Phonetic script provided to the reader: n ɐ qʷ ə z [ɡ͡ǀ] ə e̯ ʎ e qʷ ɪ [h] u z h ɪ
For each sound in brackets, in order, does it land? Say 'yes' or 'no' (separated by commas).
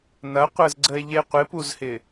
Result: yes, no